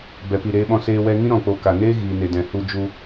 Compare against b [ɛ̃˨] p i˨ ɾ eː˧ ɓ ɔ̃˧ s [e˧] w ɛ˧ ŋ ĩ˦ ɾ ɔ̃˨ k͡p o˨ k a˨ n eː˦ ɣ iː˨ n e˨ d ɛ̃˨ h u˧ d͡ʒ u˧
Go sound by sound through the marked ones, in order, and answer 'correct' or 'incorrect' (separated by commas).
incorrect, incorrect